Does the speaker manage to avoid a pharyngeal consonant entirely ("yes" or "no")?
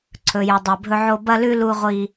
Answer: no